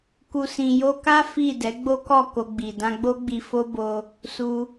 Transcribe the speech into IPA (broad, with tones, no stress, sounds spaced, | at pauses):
k u˨ s ĩ˨ j o˧ k a˦ f i˦˨ d ɛ˨˦ ɡ͡b o˦ k ɔ˦˨ k o˧ ɡ͡b i˨ d ã˧ ɡ͡b o˦ ɡ͡b i˧ f o˦ b o˧ | s u˧